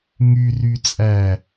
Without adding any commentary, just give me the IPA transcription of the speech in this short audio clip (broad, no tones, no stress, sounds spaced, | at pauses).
ŋ y r y t͡sʼ æ